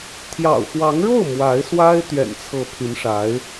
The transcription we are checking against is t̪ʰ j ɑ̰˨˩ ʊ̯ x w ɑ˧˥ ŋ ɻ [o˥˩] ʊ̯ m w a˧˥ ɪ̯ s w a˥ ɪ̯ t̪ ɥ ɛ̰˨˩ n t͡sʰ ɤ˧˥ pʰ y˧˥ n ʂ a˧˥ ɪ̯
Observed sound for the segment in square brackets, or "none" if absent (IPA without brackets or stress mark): o˥˩